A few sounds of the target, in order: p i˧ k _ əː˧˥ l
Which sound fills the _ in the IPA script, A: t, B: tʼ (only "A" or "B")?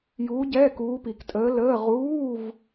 B